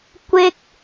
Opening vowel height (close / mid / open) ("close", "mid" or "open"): close